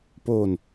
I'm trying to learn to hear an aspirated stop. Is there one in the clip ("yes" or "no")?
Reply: no